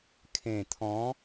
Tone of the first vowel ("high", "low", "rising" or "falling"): low